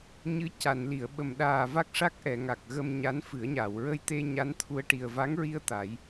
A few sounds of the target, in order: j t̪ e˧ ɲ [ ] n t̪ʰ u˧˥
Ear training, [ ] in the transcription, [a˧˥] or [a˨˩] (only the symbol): a˧˥